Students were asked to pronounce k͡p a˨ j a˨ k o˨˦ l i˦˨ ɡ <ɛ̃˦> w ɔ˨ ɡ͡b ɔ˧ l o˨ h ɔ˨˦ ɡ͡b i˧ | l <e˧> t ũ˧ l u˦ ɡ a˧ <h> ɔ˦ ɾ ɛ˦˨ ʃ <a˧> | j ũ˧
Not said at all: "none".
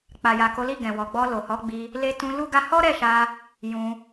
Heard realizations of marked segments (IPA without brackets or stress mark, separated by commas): ɛ̃˨, e˧, h, a˧